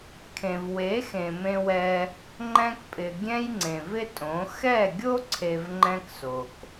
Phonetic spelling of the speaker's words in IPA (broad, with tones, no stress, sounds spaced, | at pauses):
kʰ ẽ˨ v w e˨˦ x ẽ˨ m ẽ˧ w ɛ˧ | ŋ͡ǃ ɛ̃˦ k pʼ ɪ˨ ɡʲ ɛ̃˦ j ŋ͡ǀ ẽ˨ v ɪ˦ tʼ õ˨˦ x ɛ˦˨ ɡʲ o˦ ǀʰ e˧ v ŋ͡ǃ ɛ̃˦ k s o˨ k